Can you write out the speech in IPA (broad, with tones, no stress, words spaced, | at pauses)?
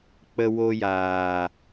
k͡pə˧ wo˧jaː˨